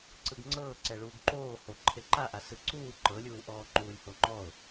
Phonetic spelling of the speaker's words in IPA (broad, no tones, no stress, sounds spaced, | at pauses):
ǀ ɯ ɡ ŋ͡ǀ ɤː ǀ ɛ ɭ uː ɡ ǃ oː h o ǃʰ e ǃ a ʔ a s ɯ ǀ uː ǃ ɤ lʲ uː ʔ ɔː ŋ͡ǃ uː lʲ h o ŋ͡ǃ ɔ ʊ̯